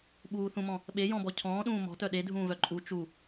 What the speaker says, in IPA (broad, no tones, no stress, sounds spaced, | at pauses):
ɓ uː θ ũ m ɔ̃ | ɓ e j ɔ̃ b ɔ cʰ ɔ̃ː ɗ ũː m ɔ̤ t œ ɗ e dʱ ũː v œ ǃʼ u t͡ʃ u